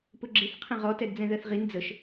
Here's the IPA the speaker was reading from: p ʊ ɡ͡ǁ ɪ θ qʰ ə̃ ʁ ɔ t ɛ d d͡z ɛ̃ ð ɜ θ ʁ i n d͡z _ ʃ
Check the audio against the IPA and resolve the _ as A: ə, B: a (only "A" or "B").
A